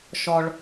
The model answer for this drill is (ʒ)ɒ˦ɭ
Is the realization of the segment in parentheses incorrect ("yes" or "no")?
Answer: yes